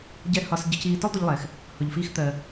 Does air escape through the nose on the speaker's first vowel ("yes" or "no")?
no